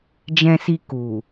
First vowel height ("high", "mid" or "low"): mid